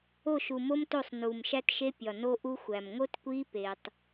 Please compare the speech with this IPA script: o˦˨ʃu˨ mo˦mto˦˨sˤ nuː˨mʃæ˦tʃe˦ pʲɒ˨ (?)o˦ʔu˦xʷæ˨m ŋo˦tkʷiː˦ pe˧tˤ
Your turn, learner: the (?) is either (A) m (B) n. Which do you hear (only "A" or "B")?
B